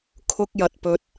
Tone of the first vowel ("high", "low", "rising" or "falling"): high